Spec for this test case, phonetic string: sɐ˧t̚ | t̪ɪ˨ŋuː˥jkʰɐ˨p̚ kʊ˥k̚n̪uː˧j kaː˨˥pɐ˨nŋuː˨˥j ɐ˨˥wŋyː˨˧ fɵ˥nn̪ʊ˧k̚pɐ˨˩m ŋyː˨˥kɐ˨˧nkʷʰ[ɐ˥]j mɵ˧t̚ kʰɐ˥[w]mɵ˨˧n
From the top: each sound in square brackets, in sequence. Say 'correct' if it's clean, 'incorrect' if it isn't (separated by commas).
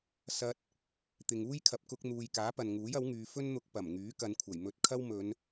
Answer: incorrect, correct